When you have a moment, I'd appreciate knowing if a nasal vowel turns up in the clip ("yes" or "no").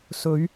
no